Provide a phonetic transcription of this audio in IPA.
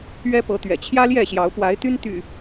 ɥ ɛ˦ p ɤ˨˦ t̪ ɥ ɛ̰˨˩ t͡ɕʰ j ä˦ l j ɛ˥˨ ɕ j ɑ˨˦ ʊ̯ p w a˨˦ ɪ̯ t̪ y˦ n t̪ y̰˨˩

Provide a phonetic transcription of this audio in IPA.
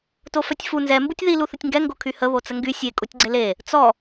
t o f œ tʲ f u n z ɛ m b u tʲ ð i l u θ ə tʲ ŋ ɡ ɛ ŋ ɡ o kʰ y h ə β o t͡s ə ŋ ɡ y sʲ e kʼ u tʲ ɡ͡ǀ e l e | t͡s ɔ

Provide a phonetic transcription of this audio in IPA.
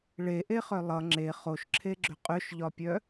ɭ e ʔ e χ œ lˠ ʌ ŋ͡ǁ e χ o ʃ ǁʰ e ɡ͡ǁ ʏ qʼ ʏ ʃ ʎ ɒ pʲ œ

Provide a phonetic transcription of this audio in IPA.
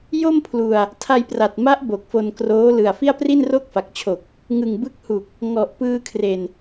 j o˥˩ m pʰ l u˧ a̯ | tʰ a˧ j p r a˨˩ t̚ m a˦˥ ʔ b o˨˩ k̚ f o˧ n k r oː˦˥ l ɯ˨˩ a̯ f i˥˩ a̯ p r i˥˩ n r o˥˩ k̚ f a˨˩ k̚ t͡ɕʰ o˨˩ k̚ | ŋ ɯ˨˩ ŋ b ɯ˦˥ k̚ h u˨˩ k̚ | ŋ ɔ˨˩ ʔ p ɯː˧ kʰ r e˨˩ n

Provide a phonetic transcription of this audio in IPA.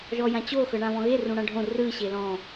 ʒ ɔ j ã t͡ɕ o x ɤ ɳ ã β ɔ̃ ɣ e r ũ ɽ ã ɖʱ õ r ɯ ɕ e l ɔ̃

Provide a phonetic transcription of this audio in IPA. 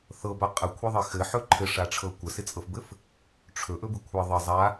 θ ɤ b a qʼ ə kʷʰ e ðˤ ɘ x ɘ ħ ɵ ǃʰ ɘ ʂ a ʈ͡ʂʰ ɤ kʷ ə s ɪ t͡sʼ ɤ f b ɘ f | ʈ͡ʂʰ ɵ ʔ ɵ b ɪ kʷʰ ɘ ðˤ ɘ zˤ a

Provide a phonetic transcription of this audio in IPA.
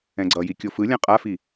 ɛ̃ ɡ͡ǀ ʌ j i kʲ o f ɯ lʲ ã qʼ a f i

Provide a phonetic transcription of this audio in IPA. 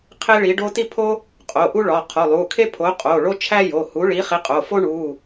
qʰ e˥ ɭ i˨˥ ɖ o˥ t i˥ pʰ o˥ | qʼ o˩˧˩ ʔ u˥ ɭ ɒ˩˧˩ qʰ o˩˧˩ lˠ u˩˧˩ kʰ e˥ pʰ o˨˥ qʼ o˩˧˩ ɭ o˥ t͡ʃʰ æ˥ j o˩˧˩ h u˨˥ ɭ i˨˥ χ i˨˥ qʼ o˩˧˩ f o˥ ɳ u˩˧˩

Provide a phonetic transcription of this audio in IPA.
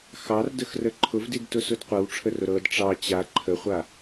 x ɑ r d ə x r ə ǃʰ ʊ v d i d t ʊ s ʊ d qʷ ɤ w ʈ͡ʂʰ ə r ʊ ɾ ɤ d ʈ͡ʂ ɑ t͡ɕ a ǃʰ ə χʷ a

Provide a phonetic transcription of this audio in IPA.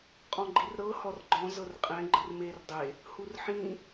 qʼ ɔ̃ ɡ͡ǃ i r ɾ ɤ h ɔ r ɡ͡ǃ ɔ̃ z ɤ r qʼ ɛ̃ ɡ͡ǃ ɯ r m e r dˤ e | h u r ħ ĩ

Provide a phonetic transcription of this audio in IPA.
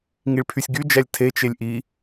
ŋ i ɭ pʰ y sʲ ɡ y d͡ʒ æ lʲ tʰ e t͡ʃ e lʲ ʔ i

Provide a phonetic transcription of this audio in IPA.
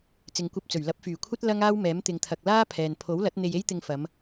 t͡s ɪ˨ ŋ kʷ ɐ˧ p̚ t͡s ɵ˨˩ ɥ l ɐ˨˥ p̚ f yː˨˩ kʷʰ ɐ˥ t̚ l ɐ˥ ŋ aː˥ w m ɛː˨˥ m t̪ ɪ˨ ŋ t̪ʰ ɐ˨ k̚ l aː˥ pʰ ɛː˨ n pʰ o˨˥ w l ɐ˨˥ t̚ n̪ e˧ j e˥ j t̪ ɪ˧ ŋ f ɐ˨˧ m

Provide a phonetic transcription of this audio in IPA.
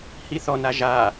h i θ ɔ n a ʒ a

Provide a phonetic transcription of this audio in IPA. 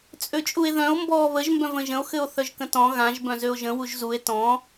t͡sʼ ø t͡ʃʼ u e̯ ð œ̃ o̯ m b ɔː β ə ʒ m b œ̃ v ə̃ ʒ ə̃ o̯ x ɘ o̯ θ œ ʒ k ə̃ t ɔ̃ ɣ ã ʒ b œ̃ z ø o̯ ʒ ə̃ w u ʒ z u e̯ t ɔ̃

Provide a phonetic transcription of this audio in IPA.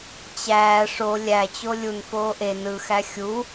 t͡ɕ æː ʂ o lʲ æ t͡ɕ o lʲ u n f oː ʔ e n ɯ x æ xʲ u

